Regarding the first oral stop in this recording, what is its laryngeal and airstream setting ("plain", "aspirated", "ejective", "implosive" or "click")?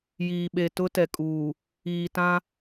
implosive